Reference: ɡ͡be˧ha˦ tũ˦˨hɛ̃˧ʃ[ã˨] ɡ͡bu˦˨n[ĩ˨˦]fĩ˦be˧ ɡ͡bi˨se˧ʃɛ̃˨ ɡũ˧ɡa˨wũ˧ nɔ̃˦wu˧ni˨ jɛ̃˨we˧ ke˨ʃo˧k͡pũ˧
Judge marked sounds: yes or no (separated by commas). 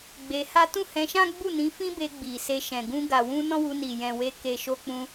no, yes